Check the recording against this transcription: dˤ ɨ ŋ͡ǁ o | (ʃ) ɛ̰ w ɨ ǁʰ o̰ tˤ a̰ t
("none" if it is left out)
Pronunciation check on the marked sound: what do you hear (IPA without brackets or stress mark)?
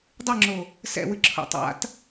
s